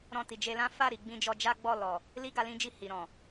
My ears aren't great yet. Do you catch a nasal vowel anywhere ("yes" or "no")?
yes